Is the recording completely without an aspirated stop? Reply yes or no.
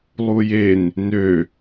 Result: yes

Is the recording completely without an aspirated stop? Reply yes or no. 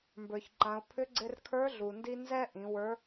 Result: no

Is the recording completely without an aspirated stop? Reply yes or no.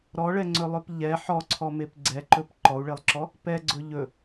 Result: no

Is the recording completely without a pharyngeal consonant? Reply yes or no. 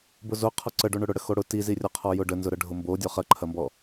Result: yes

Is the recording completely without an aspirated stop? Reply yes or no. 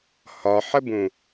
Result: yes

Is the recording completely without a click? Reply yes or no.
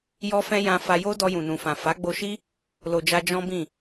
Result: yes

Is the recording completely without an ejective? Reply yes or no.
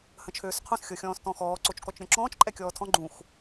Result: no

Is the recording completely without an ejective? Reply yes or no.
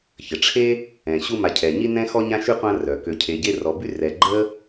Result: yes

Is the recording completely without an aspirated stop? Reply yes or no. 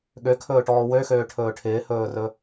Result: no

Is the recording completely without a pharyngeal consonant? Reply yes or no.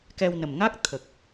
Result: yes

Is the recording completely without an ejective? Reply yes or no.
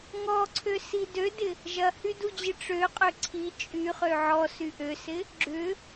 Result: no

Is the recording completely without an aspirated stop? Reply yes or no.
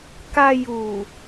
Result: yes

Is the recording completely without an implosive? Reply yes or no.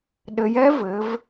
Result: no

